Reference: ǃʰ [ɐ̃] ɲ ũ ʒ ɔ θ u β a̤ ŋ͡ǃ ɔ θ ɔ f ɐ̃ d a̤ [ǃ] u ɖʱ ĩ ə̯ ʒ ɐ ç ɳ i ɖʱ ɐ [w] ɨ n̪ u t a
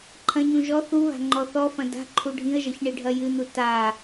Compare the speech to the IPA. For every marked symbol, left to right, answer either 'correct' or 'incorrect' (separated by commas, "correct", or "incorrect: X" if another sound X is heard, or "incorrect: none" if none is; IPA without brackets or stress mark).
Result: correct, incorrect: ǃʰ, incorrect: j